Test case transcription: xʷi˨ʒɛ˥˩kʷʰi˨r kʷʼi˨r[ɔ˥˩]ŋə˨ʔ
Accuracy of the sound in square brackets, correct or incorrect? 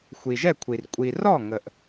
correct